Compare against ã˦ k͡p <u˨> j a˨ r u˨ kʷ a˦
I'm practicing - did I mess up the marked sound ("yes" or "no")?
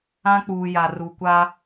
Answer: yes